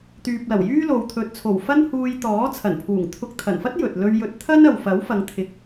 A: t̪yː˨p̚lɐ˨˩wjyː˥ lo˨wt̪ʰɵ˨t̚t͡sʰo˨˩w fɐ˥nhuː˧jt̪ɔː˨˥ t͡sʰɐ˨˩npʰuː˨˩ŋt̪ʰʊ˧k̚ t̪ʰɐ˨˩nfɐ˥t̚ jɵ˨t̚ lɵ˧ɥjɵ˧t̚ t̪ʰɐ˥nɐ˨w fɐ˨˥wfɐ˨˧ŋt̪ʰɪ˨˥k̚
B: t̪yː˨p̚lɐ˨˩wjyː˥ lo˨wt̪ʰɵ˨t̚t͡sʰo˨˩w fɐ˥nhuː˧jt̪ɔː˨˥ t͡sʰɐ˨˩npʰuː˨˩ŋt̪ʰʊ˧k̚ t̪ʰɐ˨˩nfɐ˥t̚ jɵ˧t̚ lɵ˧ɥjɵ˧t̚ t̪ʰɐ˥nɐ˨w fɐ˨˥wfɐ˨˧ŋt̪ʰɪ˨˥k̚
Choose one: A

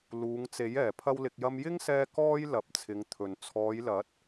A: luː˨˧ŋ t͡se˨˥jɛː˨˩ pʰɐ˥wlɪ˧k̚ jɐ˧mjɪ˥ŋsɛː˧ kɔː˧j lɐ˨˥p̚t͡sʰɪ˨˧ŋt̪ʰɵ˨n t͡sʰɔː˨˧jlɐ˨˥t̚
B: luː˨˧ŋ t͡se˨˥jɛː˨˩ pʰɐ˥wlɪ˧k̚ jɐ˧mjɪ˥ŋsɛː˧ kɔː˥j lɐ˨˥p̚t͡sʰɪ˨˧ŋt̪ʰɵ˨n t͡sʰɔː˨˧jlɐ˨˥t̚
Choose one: B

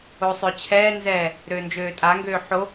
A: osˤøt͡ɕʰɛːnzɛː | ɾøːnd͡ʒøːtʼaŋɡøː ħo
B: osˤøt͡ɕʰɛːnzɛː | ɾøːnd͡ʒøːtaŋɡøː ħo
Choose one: A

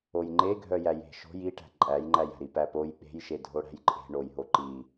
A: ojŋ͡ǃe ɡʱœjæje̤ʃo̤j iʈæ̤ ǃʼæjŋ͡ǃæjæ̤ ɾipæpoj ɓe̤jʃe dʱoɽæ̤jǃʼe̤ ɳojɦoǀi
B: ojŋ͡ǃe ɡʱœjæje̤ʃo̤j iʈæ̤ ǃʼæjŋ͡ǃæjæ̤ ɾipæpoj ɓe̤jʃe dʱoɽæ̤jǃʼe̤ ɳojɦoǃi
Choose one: B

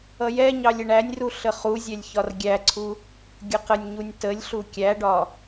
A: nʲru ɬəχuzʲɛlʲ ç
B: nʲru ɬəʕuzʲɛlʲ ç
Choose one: A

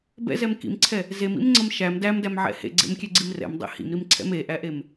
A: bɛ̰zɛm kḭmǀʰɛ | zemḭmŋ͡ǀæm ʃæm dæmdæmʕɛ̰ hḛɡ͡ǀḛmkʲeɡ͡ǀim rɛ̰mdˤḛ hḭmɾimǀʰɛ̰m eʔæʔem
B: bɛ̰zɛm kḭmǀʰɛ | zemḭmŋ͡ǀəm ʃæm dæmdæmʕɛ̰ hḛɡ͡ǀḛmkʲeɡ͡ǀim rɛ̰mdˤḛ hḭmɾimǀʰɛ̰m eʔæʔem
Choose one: B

